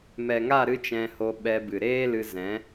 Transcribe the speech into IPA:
m ɛ˨ ŋ a˦˨ ɾ ɨ˦ t͡ʃ ɛ̃˧ h o˧ ɓ ɛ˧ b ɨ˨ ɾ eː˦ l ɨ˧ z ɛ̃˨˦

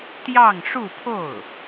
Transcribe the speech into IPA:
t̪ j ɑ˥˧ ŋ ʂ u˥˧ pʰ o˥˩ ʊ̯

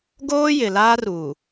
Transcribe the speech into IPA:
ɡ oː˦ j ɪ˨ l aː˦ r uː˨

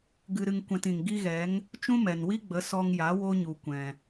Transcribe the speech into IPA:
ɡ ɨ˧ ɾ ɨ˧ ŋ kʷ ɛ̃˧ t ĩ˨ ŋ ɡ i˦ ɣ ɛ˨˦ ŋ | t͡ʃ ũ˦ m ɛ˨ n w i˦ ɡ͡b ə˨˦ s ɔ˧ ŋ j a˨˦ w o˦ ɲ u˨ kʷ ɛ̃˨

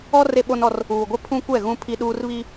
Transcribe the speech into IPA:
ɔ˦ r e˦ ɓ o˦ n ɔ˦ r | uː˨ ɡʷ ɪ˦ pʰ ũ˦ kʷ ɛ˦˨ ɣ ũ˦ pʰ i˦ ɗ uː˦ r β i˦

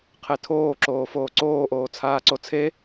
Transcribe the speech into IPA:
qʰ e tʰ oː ǁ oː f oː ǀ oː ʔ oː t͡sʰ aː ǀ o t͡sʰ e

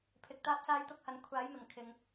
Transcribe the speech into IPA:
pʰ ɪ˨ k̚ t̪ aː˧ p̚ s aː˧ j t̪ ʊ˧ k̚ h ɐ˨˧ n kʷʰ aː˨˥ j m ɪ˨˩ ŋ kʰ ɪ˨ ŋ

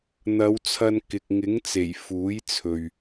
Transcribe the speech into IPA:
n̪ ɐ˨˧ w t͡sʰ ɐ˧ n k ɪ˨ k̚ ŋ ɪ˨˥ ŋ t͡s e˨˩ j f uː˨˥ j t͡sʰ ɵ˨ ɥ

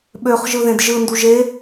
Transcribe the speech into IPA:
ɓ ø χ ʒ ɯ ð ẽ d ʒ ɯ n d u ʒ e

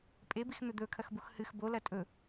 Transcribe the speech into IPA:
pʼ e b i x n̪ ɵ d̪ ɵ kʰ ɐ x b u x h ɨ x b o l ɐ tʼ ɵ

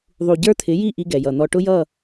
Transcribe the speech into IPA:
ðˤ u˨ ɟ ə˞˦ t̪ʰ ɪ˨˦ j i˦˨ ʔ i˦ ɡ ɛ˨ j ʌ˨ n̪ ɔ˨ ʈ ʊ˦ j ʌ˦˨

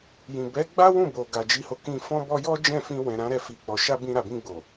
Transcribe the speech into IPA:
j ĩ˨ b ɛ˨˦ ɡ͡b a˦ w ũ˦˨ b o˨ ɡ a˨ d͡ʒ i˧ h o˧ k ĩ˧ f ɔ̃˧ b ɔ˧ j ɔ˦ d͡ʒ ɛ̃˦˨ f ĩ˧ w ɛ̃˨ ɾ ã˨˦ ɾ ɛ˧ f i˨ k͡p ɔ˨ ʃ a˧ b ĩ˧ ɾ a˨ b ĩ˧ ɡ͡b o˨

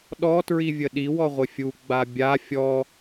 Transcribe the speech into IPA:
ɗ ɔ t ɹ i vʲ ə ɗ i w ɔ ʁʷ ɪ fʲ u ɡ͡b a bʲ a fʲ ɔ

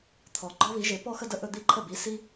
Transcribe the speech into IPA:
t̪ʰ ɔ˨˩ ɡ͡ǃ ɔ˥ β i˨˥ ʒ e˨˥ p ɔ˥˧ x ə˥˧ d ə˥˩ ʔ ɵ˥˧ d̪ i˥˩ ǃʰ ə˥˩ b i˨˥ s i˥

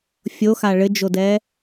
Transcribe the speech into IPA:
fʲ o x a ɭ ɘ d͡ʒ o d ɛ

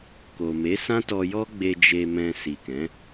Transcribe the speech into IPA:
k o˨ m e˨˦ s ã˦ t ɔ˧ j ɔ˦ ɡ͡b e˧ d͡ʒ e˧ m ɛ̃˧ s i˨ k ɛ̃˨˦

